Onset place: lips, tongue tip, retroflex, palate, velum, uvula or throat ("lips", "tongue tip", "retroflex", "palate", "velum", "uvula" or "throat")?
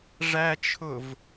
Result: retroflex